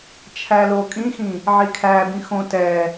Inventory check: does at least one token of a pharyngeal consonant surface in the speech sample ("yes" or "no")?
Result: yes